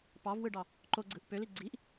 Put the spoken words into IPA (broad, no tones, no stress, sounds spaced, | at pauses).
p ɑ v w ɯ ɖ ɑ | ǃ o ɡ͡ǀ ɯ ʔ p ø l i ɡ͡ǀ i ʔ